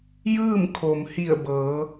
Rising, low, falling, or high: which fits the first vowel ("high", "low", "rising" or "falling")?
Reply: falling